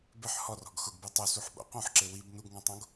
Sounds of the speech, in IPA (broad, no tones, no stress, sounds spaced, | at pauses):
b ɪ ħ h ɔ r ɔ̤ ɡ x ʊ ɡ b u tˤ u s u ħ ɓ o̰ q õ ħ ǁ e w i b n u ɡ ŋ ɔ̃ tˤ õ ɡ